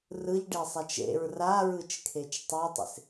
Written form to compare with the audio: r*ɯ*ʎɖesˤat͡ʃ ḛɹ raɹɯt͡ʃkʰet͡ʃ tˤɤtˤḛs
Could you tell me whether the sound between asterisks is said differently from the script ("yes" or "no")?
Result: no